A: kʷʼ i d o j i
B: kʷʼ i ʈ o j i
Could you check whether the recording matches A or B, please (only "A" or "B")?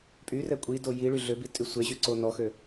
A